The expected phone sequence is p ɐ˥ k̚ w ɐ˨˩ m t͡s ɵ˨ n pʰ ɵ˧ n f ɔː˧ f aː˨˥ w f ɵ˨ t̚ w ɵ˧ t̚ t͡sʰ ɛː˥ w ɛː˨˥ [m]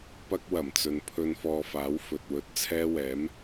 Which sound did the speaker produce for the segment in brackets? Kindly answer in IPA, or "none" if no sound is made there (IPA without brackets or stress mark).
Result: m